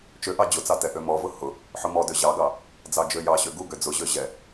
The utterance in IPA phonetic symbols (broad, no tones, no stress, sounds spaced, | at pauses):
t͡ʃ ø ʔ ɑ d͡ʑ ʊ t͡s ɑ t ɛ ʔ ø m ɔ v ʊ h ʊ | ħ ʊ m ɔ d ø ʑ ɑ ɡ ɑ | d͡z ɑ d͡ʒ ø j ɑ ɕ ø ɡ u ɡ ø d͡z ʊ ʑ ø ʑ ɛ